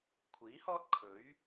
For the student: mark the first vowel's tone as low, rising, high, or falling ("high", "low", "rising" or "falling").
rising